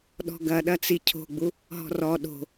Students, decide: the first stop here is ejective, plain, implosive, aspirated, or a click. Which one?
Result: implosive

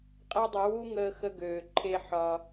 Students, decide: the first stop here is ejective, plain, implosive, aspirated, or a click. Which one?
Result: ejective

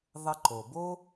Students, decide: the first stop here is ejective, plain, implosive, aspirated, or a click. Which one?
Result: click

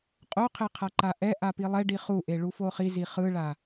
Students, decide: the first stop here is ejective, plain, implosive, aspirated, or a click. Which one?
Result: ejective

